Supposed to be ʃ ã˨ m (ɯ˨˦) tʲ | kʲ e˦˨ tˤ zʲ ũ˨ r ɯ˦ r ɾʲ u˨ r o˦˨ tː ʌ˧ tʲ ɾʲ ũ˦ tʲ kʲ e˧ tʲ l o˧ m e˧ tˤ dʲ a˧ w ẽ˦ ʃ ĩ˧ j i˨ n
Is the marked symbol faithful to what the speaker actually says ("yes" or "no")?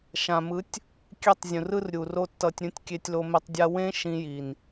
yes